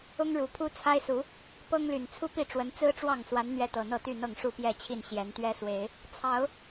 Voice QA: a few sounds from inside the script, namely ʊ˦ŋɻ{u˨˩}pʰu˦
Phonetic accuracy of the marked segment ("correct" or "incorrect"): correct